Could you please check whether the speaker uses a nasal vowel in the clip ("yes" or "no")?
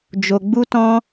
yes